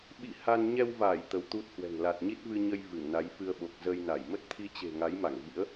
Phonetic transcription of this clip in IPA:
ɓḭ˧˨ ha˧n ɲɛ˧wvaː˧˩j t̪ə˨˦wt̪u˦˥t̚hwɛ̤˨˩ŋ la˨˩t̚ɲi˦˥t̚vɨ˧ɲə˧j vɨ˧˩ŋna˨˦jfɨ˧ə̯ɓo˨˩k̚ zə˧jna˧˩j mə˦˥t̚t̪ʰi˧t͡ɕe̤˨˩ ŋa˨˦jma˧˩ŋvḭ˧˥ə̯

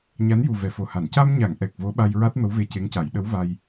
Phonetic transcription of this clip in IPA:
ɲa˧˥nju˨˩ vɛ˨˩˨fo˨˩ha˨˩˨n ca˧mɲa˨˩˨ŋ ʔɛ˨˩k̚vo˧˥ ɓa˧jɹa˦˥t̚ mə˧˥wve˧ce˧˥ŋca˨˩˦j ɗə˧˥w va˧j

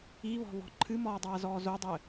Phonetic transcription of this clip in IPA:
iβɔ̤βɔ̤ ǃʰɨmɔːdˤaːzɔː zodˤɘ

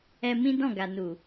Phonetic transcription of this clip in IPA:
ɛ˧ mĩ˦dɔ̃˦˨ɡa˨ nu˨

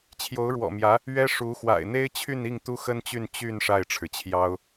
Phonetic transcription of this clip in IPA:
t͡ɕʰjo˧˥ʊ̯ɻwɔ̰˨˩mjä˧˥ | ɥɛ˥ʂu˧˥ xwa̰˨˩ɪ̯n̪e˥ɪ̯t͡ɕʰy˥˧ni˥˩ŋ t̪u˥xə˥nt͡ɕy˥˧n t͡ɕy˥˧n ʂa˥˩ɪ̯ʈ͡ʂʰɻ̩˩t͡ɕʰjɑ˥ʊ̯

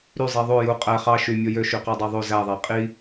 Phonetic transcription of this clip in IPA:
ɾy zˤiðˤo ju qʼæ χɑ ʃy mʲojø ʃyqædˤɑðˤo zæðˤæ qʼi

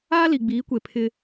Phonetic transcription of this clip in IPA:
aː˦li˨ɡ͡biː˨˦kʷe˨ pʰɪ˦

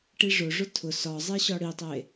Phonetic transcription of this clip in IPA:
ʈiʐʊʐʊ tʰʊ sɒ zˤeɕɒɽitˤe

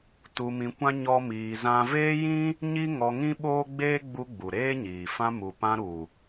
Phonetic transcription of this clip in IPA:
tu˧mĩ˧kʷã˦ ɲɔ˦miː˧zã˦ veː˦jĩ˦ | ɲi˦ ŋɔ˧ŋĩ˦ ɓoː˦ɡ͡beː˦ ɡ͡bu˧ ɡ͡bu˨ɾeː˦ɲiː˨ fã˧mu˨pã˧ ɾu˨

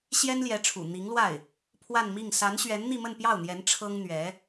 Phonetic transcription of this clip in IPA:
ɕjɛ˥nljɛ˧˥ʈ͡ʂʰṵ˨˩ n̪i˧˥ŋlwa˥˩ɪ̯ | pʰwa˥˧nmi˥˩ŋ sa˧˥nɕɥɛ˧˥n n̪i˥˧mə˥˧npjɑ˥˩ʊ̯n̪jɛ˧˥n ʈ͡ʂʰɤ˥ŋ n̪ɥɛ˧˥

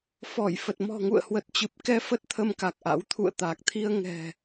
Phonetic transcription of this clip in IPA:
fɔ˧˩jfə˨˩t̚ mɔ̤˨˩ŋṵ˧˨ə̯ hwə˨˩t̚t͡ɕɨ˨˩p̚kɛ˧ fə˦˥t̚t̪ʰə˧mka˨˩k̚ʔa̰˧˥w t̪ʰṵ˧˨ə̯t̪a˨˩k̚t̪ʰi˧ə̯ ŋɛ̤˨˩

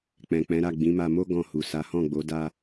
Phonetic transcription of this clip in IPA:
k͡pɛ̃˨k͡pɛ̃˨˦ɾa˦˨ ɡ͡bĩ˨˦ma˧mo˦ ɡɔ̃˧hu˨ sa˨˦hɔ̃˦˨ɡ͡bo˨˦ da˧

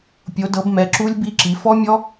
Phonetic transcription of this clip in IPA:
pʲo˨˦dɤ˨˦bmɛ˨˦ ǁu˦˥lʲbi˦˥ǁi˨˦ fɔ˦˥mʲɔ˦˥

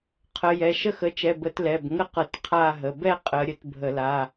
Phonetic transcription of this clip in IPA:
qʰə˨˦jɛ˩˧˩ ʃə˥˧xə˨˦t͡ʃɛ˩˧˩bə˧˩˧t lɛ˩˧˩b ŋə˥˧qɤ˧˩˧t qʰa˥˧ɦə˩˧˩ bɛ˥˧ qʼə˨˦ɾʲə˨˦t bʱə˧˩˧la˩˧˩

